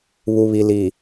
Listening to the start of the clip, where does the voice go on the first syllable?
low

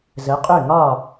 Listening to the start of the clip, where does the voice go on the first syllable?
rising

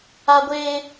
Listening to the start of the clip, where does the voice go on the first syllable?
high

